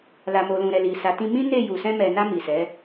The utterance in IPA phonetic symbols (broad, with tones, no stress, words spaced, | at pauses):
la˨mo˨lũ˨ɾɛ˨ li˨sa˨˦tĩ˦ mĩ˦ne˦˨ ju˨sɛ̃˧ mɛ˨na˧ mi˨sɛ˨˦